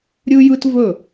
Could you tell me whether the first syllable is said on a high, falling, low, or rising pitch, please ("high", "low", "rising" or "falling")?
high